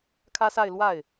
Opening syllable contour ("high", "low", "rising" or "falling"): high